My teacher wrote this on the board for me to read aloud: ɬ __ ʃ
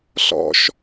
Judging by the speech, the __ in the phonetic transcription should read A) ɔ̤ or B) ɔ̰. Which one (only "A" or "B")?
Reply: B